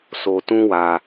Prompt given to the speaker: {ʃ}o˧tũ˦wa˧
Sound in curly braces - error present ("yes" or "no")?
yes